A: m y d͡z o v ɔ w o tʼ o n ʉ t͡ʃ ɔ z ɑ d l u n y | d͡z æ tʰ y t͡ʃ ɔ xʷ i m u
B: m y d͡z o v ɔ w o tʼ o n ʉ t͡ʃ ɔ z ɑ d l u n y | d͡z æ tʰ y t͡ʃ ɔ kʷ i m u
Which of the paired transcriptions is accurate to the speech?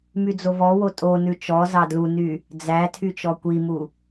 B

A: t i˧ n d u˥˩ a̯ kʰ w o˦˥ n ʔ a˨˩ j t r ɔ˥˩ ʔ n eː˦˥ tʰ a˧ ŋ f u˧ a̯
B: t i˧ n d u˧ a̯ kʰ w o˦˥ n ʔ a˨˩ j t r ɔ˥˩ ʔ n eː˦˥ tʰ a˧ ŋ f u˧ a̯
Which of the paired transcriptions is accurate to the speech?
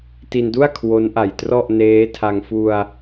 A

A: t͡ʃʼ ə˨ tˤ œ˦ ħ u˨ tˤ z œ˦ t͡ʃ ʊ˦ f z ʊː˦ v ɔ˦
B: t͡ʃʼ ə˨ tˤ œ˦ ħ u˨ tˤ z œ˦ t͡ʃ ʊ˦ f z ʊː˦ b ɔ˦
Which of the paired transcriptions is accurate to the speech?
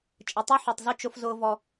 A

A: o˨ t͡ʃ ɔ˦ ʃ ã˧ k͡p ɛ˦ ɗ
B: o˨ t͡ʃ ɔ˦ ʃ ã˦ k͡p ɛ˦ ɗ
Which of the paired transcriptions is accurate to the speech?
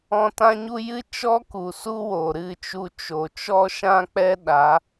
B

